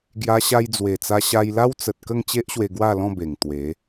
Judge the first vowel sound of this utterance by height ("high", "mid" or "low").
low